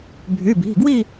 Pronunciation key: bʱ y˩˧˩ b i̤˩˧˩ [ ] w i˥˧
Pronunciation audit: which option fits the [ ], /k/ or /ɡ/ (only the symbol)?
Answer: ɡ